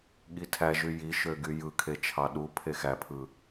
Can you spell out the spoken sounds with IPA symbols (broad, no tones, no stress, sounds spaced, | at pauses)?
ɠ i tʰ æ ʒ y j i ʃ ø ɡ y j ɯ kʰ e t͡ʃʰ ɑ ɗ u pʰ e x æ pʰ ɯ